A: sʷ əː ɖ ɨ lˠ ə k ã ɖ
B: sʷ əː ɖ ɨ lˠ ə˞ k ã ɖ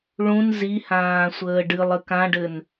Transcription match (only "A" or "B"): A